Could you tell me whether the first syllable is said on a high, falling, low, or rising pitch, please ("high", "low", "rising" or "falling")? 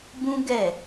high